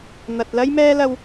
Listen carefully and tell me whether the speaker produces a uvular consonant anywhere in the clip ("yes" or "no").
no